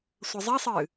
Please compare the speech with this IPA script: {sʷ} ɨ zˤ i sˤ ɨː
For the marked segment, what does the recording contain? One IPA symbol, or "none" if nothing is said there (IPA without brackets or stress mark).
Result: sʷ